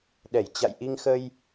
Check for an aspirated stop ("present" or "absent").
absent